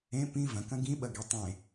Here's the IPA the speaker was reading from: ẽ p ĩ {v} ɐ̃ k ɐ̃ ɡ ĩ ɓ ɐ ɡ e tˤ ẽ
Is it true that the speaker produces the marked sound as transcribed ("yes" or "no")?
yes